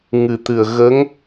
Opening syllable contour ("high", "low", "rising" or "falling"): low